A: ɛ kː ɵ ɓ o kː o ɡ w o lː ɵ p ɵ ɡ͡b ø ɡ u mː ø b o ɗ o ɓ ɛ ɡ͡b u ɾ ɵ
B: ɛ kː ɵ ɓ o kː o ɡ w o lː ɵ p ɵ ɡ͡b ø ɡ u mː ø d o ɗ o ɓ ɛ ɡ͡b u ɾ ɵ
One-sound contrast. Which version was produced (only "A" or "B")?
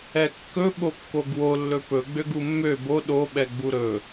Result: A